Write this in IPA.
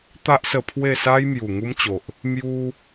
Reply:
t̪a˦ʔsə˧ pʰwe˥˧sa˦j mju˨˩ŋu˦mt͡ɕo˨ʔ | mju˦

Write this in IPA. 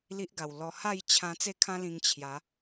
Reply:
li˦ʔɡa˨˩wlɔ˧ ha˥˧jt͡ɕʰã˧ t͡se˥˧kʰã˦lĩ˧ŋ t͡ɕʰja˨˦

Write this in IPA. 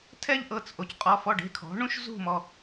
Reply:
tʰɛ˥ʎʔɤ˩˧˩t͡sʔo˩c qʼɔ˩˧fɔ˩˧˩ɖ e̤˩˧˩kʰɔ̤˩˧ ɳũ˥ʃzṳ˥˧mɔ˩˧˩

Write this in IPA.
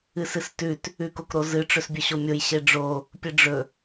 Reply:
ɨsɨstʉt | ʉkokɾozɨ ʈ͡ʂɵsbʲɵɕomʲoj ɕeɖ͡ʐo | pʲɨɖ͡ʐɵ

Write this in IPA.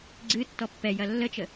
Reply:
ɡ͡ǀɨ tːɔpːɛ jɐlːət͡ʃə

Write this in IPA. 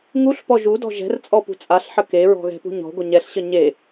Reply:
ŋuɬpɔ ʒudɔ̤ ʒɛ̤rt͡sʼɔpṳ t͡sʼaɬħə keɹɔ̤ɣɛ̤pṳ ɲɔ̤ɡʷə ɲɛɬɕə ɲe

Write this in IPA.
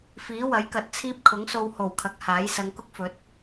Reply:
fiː˨˥wɐ˨˥jkɐ˨t̚t͡sʰiː˥p̚ kʰʊ˨˥ŋso˧who˨˩wkʰɐ˨˥k̚ haː˨˥j sɐ˨˧ŋkʊ˥k̚ fɵ˨˥t̚

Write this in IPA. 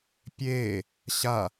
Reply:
pʲeː | ɕa

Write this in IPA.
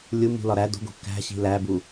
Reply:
lʲu mṳlɒ ɾæ do̤ɡo̤ kæ̤ ɕi̤læbu

